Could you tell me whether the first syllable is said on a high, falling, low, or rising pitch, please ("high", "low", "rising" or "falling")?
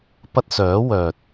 high